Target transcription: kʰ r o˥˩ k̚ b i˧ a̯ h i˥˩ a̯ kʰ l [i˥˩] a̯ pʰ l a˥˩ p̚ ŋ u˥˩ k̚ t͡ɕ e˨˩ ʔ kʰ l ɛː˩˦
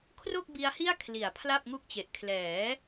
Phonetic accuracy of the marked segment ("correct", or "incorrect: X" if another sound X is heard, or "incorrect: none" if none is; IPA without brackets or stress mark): incorrect: i˩˦